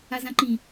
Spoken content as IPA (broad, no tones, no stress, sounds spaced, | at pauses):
a z ã ǃ ĩ